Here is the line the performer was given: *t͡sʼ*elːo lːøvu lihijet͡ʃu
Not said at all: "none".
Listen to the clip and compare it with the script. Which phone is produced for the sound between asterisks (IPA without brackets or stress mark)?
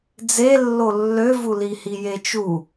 d͡z